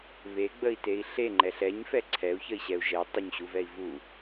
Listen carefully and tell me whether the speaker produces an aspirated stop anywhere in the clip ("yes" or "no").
yes